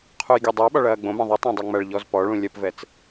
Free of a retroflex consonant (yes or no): no